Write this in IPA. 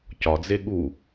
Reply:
cɒd͡ze ɠu

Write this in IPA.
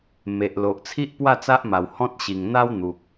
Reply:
me˨ʔ lo˨ʔt͡sʰi˦ʔpwa˥˧ t͡sa˦ʔma˨˩w hɔ̃˦t̚ ɕi˨˩ŋn̪a˦w n̪u˨k̚

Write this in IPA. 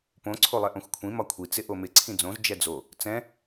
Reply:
põ ǀʰolˠɛʔõxʷkʷʰĩ mɒkʷʰi t͡sɪʔomɪ ǀʰĩd͡zõz d͡ʒɛd͡zo | t͡sɛ̃

